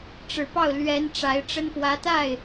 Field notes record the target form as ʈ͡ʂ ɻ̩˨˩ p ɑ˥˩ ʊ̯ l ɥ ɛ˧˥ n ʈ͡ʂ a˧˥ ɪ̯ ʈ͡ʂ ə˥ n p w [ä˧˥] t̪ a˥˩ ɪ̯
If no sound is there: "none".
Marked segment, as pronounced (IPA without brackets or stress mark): ä˧˥